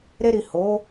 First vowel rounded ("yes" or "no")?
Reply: no